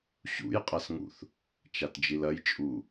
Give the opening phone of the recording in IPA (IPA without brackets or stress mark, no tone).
ɕ